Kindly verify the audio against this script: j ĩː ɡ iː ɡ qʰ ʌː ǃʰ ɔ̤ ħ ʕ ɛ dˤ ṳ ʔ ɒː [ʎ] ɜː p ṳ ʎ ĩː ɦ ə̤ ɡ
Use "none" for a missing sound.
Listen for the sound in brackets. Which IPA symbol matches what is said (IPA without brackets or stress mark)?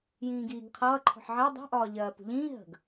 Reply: ʎ